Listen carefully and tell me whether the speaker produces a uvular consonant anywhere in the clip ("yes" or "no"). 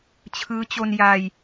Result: no